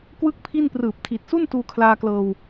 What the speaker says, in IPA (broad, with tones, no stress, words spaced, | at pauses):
kwɯ˥˩k̚pʰi˥˩n prɯː˨˩p̚tʰi˨˩t̚su˥˩n tuː˧kʰlaː˧klɤː˧w